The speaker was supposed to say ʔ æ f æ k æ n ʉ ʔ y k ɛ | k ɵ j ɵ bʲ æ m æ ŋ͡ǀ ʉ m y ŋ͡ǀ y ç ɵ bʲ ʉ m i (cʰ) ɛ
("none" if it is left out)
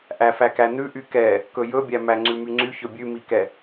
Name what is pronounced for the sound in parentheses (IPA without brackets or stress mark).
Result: k